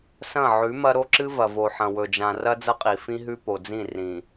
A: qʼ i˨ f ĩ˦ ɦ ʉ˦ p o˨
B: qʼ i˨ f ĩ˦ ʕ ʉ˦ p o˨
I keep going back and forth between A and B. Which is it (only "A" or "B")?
A